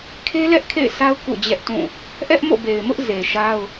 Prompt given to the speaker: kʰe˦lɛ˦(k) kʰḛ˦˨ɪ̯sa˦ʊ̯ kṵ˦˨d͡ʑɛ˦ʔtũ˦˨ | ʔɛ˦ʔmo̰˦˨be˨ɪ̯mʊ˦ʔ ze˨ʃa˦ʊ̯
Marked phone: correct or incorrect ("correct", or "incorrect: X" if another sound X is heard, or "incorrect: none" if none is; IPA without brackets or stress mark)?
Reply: incorrect: ʔ